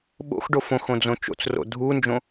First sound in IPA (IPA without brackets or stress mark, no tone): ɓ